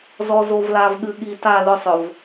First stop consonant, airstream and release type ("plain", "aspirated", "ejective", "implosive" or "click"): implosive